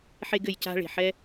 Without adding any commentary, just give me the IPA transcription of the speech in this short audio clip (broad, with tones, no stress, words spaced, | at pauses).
ħe˧ɡɘ˨jca̤˧ ɭe̤˨ħɛ˦